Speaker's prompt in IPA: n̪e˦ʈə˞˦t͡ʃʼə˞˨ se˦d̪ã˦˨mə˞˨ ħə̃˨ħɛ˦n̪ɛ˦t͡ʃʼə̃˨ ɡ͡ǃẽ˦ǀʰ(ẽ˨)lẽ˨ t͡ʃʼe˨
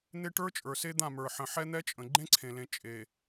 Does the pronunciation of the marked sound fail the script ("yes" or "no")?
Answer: no